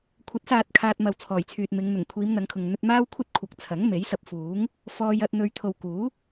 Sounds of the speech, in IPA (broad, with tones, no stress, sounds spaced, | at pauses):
kʷʰ ɐ˨˥ t̚ s aː˨ t̚ kʰ aː˧ t̚ m ɐ˨ w t͡sʰ ɔː˨˩ j t͡sʰ yː˨ t̚ m ɪ˨˧ ŋ n̪ ʊ˨˩ ŋ kʷʰ iː˨˧ m n̪ ɐ˨˧ ŋ kʰ ʊ˨ ŋ n̪ ɵ˧ t̚ m aː˥ w kʷʰ ɐ˥ t̚ kʷʰ ɐ˨˥ k̚ t͡sʰ ɐ˨˥ ŋ m e˨˥ j s ɐ˧ p̚ f uː˨˥ ŋ | f ɔː˧ j ɐ˧ t̚ n̪ ɵ˧ ɥ t̪ʰ o˨ w k uː˨˥